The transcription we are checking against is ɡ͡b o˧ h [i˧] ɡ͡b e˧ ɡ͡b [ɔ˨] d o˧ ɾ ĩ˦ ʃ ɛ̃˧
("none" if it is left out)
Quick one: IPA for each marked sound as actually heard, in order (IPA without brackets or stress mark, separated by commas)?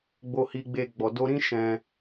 i˧, ɔ˨